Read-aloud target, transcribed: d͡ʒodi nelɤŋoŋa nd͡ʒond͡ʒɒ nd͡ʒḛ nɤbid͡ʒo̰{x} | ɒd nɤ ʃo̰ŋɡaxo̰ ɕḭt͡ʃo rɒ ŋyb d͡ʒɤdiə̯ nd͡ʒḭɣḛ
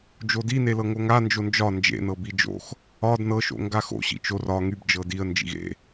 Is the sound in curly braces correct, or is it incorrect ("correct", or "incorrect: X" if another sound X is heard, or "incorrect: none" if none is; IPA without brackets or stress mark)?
correct